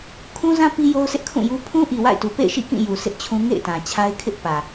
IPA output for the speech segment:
kʰ ũ˦ z ã˦ p i˦ j o˦ ʊ̯ s ɪ˦ ʔ kʰ ũ˦˨ j u˦ pʰ ũ˦ ʔ i˨ w a̰˦˨ ɪ̯ t u˨ p ḛ˦˨ ɪ̯ ʃ ḭ˦˨ k ĩ˦˨ j u˨ s ɪ˦ ʔ t͡ɕʰ ũ˦ ŋ ḛ˦˨ ɪ̯ t ã˨ t͡ɕʰ a˦ ɪ̯ kʰ ɪ˦ ʔ p ä˨

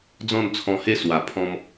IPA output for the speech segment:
d͡z ɔ̃˥˧ n t͡sʰ ɔ̃˧ h e˧ s w a˨˩ pʰ ɔ̃˦ m

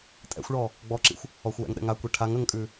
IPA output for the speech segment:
tʼ ɛ̰ xʷ ɭ ɔ | ɡ͡b ɔ ǁ ḭ xʷ | ɔ xʷ w ɛ̰ ŋ ɗ ɛ̰ ŋ a kʷ i ʈʰ a ŋ ə ŋ kʼ ʉ

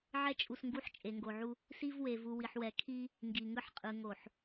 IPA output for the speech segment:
ʕ ɛ˦ t͡ʃʼ u˨ s ŋ ɡ u˦˨ ħ t͡ʃʼ e˨ ŋ ɡ o˨ ʕ u˦ | s i˦ v w e˨ v u˨ w i˨ ħ w ɛ˨ kʰ i˦ | ŋ ɡ i˨ ŋ ɯ˦ ħ qʼ ɯ˨ ŋ o˨ ħ

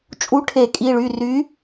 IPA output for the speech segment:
t͡ʃʼ u˨˥ ʈʰ e˧˩˧ kʼ i˩˧˩ ɭ y˩˧˩ r y˨˥

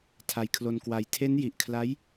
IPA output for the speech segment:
tʰ a˧ j kʰ l o˧ n k w a˧ j tʰ e˦˥ n j i˨˩ ʔ kʰ l a˦˥ j

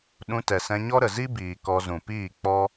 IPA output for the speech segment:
ɗ ũ˧ t ɛ˨ s ɛ̃˧ ɲ ɔ˦ ɾ ə˨ z i˦ b iː˨ k ɔ˧ z ũ˨ p iː˦˨ k͡p ɔ˦

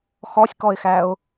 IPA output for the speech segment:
x ɔ sʲ k ɔ ɪ̯ x æ ʊ̯

